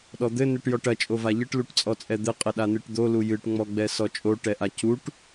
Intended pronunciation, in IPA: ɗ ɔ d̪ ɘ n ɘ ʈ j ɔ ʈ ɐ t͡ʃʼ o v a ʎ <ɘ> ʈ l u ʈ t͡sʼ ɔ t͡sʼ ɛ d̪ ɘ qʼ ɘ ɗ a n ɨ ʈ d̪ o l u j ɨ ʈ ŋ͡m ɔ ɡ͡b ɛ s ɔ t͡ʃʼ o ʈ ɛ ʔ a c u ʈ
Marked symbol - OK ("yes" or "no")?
yes